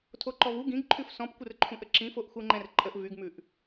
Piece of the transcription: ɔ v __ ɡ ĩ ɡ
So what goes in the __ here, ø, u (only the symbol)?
u